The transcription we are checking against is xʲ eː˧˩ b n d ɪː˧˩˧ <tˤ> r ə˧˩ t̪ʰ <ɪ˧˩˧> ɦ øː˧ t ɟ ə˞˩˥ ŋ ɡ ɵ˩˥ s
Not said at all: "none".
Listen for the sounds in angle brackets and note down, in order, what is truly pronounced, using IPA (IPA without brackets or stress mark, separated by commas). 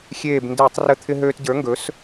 tˤ, ɪ˧